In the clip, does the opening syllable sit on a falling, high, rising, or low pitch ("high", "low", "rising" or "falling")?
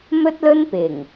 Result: high